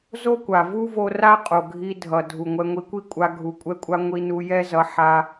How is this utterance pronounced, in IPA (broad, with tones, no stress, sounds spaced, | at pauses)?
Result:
z o˦ kʷ a˨ v u˦ v o˧ r a˦ qʼ o˨ ɡʱ i˧ dʱ ʌ˨ dʱ u˨ ŋʷ ɛ˧ ŋʷ i˧ kʷ i˦ kʷʼ a˧ ɡʱ u˨ kʷʼ ɛ˧ kʷʼ a˧ ŋʷ i˧ n u˧ j ɛ˦ z ʌ˧ ħ a˦